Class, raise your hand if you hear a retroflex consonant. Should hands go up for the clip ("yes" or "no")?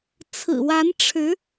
yes